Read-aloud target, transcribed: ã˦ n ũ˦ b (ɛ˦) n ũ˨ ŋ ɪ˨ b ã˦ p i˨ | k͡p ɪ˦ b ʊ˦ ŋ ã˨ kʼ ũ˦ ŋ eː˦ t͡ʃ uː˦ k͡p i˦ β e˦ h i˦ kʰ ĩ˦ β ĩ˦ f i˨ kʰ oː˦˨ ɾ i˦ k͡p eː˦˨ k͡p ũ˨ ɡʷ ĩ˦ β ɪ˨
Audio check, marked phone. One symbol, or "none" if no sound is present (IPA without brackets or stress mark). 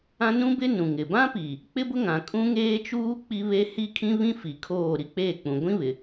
ɪ˦